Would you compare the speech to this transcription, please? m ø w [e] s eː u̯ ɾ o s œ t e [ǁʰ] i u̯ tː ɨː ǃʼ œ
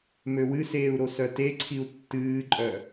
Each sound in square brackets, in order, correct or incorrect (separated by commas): incorrect, incorrect